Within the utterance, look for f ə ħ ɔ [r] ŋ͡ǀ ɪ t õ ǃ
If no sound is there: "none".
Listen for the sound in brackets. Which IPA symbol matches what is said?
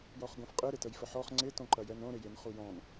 χ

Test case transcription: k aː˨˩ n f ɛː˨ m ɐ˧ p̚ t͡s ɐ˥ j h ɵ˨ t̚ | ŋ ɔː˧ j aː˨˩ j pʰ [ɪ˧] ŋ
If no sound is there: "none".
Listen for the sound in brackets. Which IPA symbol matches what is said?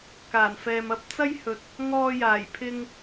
ɪ˧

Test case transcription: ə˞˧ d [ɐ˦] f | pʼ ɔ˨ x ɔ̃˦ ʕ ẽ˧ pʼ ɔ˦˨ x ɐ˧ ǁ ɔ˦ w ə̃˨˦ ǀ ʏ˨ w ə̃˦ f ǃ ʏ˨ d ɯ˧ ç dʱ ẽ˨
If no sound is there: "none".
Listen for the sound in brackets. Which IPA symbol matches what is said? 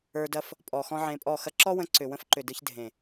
ɐ˦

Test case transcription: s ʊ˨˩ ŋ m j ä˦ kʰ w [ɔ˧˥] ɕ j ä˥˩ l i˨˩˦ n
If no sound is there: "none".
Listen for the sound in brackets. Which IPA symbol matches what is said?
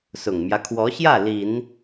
ɔ˧˥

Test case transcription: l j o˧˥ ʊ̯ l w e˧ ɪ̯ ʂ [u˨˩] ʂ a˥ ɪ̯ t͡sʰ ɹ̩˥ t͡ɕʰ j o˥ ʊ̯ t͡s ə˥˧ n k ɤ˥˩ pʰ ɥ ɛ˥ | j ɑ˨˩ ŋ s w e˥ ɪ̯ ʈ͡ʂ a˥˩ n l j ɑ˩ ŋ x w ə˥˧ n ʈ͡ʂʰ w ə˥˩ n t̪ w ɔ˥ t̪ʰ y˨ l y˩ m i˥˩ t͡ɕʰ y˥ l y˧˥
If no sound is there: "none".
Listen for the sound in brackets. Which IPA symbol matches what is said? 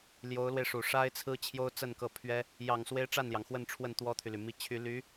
u˨˩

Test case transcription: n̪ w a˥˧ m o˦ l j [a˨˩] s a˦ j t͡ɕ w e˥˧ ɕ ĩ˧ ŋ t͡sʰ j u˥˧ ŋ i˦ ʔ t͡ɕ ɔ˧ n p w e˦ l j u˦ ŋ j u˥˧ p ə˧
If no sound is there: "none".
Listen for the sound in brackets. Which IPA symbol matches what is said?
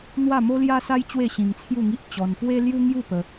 a˦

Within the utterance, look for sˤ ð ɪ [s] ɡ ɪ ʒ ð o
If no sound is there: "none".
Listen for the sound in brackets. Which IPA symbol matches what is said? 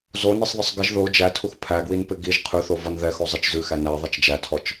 sˤ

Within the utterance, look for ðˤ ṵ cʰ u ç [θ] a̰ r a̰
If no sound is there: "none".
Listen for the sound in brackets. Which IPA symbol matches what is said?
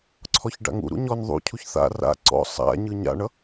θ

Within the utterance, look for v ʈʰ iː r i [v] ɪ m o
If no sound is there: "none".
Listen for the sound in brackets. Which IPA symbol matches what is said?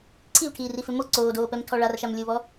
f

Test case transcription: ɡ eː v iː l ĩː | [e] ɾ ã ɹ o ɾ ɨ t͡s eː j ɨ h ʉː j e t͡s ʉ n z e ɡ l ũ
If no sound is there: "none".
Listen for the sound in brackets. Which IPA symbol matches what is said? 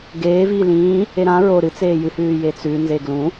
e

